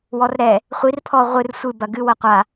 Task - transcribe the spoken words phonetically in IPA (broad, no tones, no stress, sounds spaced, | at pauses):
w ɔ r ɾ ɛ | χʷ i r pʰ ɔ ʁʷ ɨ r sʷ ɨ b ɐ ɡ ɨ w ɐ qʷ a